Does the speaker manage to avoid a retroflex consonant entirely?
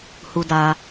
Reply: yes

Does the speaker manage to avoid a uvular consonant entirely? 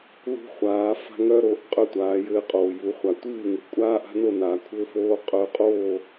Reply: no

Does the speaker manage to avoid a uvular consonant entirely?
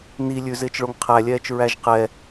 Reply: no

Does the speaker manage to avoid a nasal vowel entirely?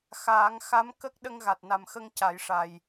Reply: yes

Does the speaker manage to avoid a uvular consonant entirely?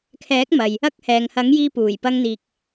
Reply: yes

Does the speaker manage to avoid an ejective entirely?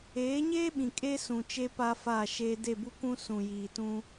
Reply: no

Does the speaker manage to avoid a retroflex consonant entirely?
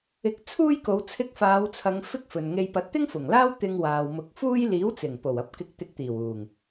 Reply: yes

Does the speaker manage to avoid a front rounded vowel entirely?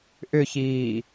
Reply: no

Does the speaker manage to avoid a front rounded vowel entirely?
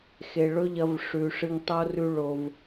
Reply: yes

